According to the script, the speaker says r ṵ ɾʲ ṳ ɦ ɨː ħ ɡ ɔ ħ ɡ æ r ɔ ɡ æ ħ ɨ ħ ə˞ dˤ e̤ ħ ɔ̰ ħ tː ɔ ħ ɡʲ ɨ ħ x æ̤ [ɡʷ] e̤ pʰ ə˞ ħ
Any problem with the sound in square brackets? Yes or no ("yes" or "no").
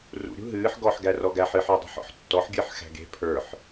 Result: yes